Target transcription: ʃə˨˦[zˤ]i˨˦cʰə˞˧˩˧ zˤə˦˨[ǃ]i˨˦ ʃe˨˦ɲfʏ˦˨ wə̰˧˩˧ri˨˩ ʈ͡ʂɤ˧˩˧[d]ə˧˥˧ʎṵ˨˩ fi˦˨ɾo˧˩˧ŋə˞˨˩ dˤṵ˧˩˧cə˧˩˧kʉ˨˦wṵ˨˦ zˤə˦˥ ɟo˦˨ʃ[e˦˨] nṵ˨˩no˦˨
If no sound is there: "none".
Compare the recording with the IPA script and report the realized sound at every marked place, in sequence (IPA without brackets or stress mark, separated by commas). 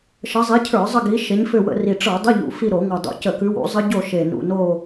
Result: zˤ, ɡ, dˤ, e˨˩